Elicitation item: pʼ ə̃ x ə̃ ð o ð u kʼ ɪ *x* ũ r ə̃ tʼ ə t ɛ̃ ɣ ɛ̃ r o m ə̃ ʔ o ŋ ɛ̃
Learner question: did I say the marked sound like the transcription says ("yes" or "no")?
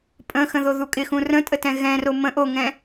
yes